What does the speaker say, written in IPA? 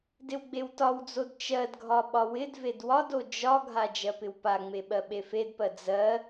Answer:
dɪwɡ͡bewtɒwd͡zod t͡ʃɜdɡʱɒ ɓɒwɪdved wɒdo d͡ʒɒɡʱa d͡ʒɜpɪwpaŋ͡me ɓɜɓefedpɜ d͡zɜ

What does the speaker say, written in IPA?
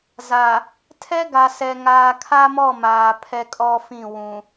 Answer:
za˨ | tʰɛ˦ɡa˨sɛ˨ ŋaː˨kʰa˦mɔ˦˨ maː˨ pʰɛ˦kʼɔ˦fĩ˦˨ wũ˨

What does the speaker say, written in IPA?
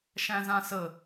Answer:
ʃæ̃zãsə

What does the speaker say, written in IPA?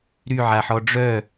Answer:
ɾyʕaħɔ ɖ͡ʐœ

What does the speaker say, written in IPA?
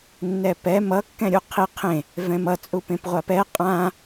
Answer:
nːɛpɛ mʌ kːɛ̃ɾʲuqʰi qʰẽ | vɛ̃mʌ t͡sʼupẽpʁʷapɛ qʼã

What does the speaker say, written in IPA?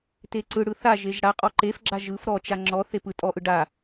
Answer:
teǀɯɽɯ θaʒeʒ ɽa qʼɔǃefɡ͡ǁa ʒɯf ɾɔt͡ʃa ŋ͡ǁɔ θepɯ tʼɔʔɯ ɖa

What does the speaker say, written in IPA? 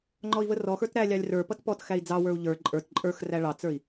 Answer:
ŋ͡ǃɔi̯vərɔxə˞t ɾælʲɑlʲ rə˞pʌt pɔt xæi̯d͡zɑwə˞u̯ ʎə˞ ǃʼə˞t ǃʼə˞x ræɭɑt͡sə˞i̯

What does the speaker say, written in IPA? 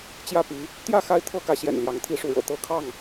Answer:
t͡ɕjä˦pi˨˦ | t̪jä˥˨ xa˦ɪ̯ t̪ʰɤ˦kä˨˦ɕjɛ̰˨˩nljɑ˨˦ŋ t̪ʰi˥˨ʂu˥˨ɻɤ̰˨˩ t̪ɤ˦ kʰɑ˥˨ŋ

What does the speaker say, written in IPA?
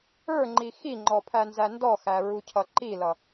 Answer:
ə˞ŋ͡ǃi xiŋ͡ǃɔpʰænzæ ndɔxæɹucʰʌ ǃilʌ

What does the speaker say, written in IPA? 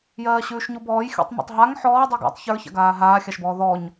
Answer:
jɜːɕʉːʃɲubɔːj xʲṵtˤma̰tˤɦaŋ ħɔː dˤə˞ɡa̰tˤ çə˞ça̰ɡaː ɦaːxʲaʃbɔː ðɔɲ

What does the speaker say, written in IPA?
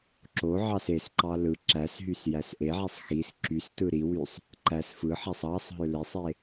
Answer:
ǁo ʕɑsesǃɑ lɯ ǁæsɦys jæsʔeʕæsˤ xis ǁys tɯɾiwysˤ | ǃæs fɯħæsˤ ɑsˤɦø lesˤe

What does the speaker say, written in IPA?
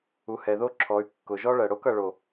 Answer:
u˨hɛ˨ðo˦ǁʰɔ˨˦y̯ kːʊ˨ʒɔ˦ɭɜ˨ ɽo˦kʌ˨ ɭo˨

